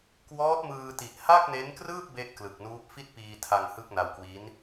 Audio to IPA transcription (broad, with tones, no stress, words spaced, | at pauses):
kwɔː˦˥t̚mɯː˧ti˨˩ʔ ha˥˩k̚ne˦˥nkrɯː˥˩p̚ be˥˩ʔklɯ˨˩k̚nuː˦˥p̚ fi˥˩t̚piː˧tʰa˧ŋ hɯ˥˩k̚na˧wkwi˦˥n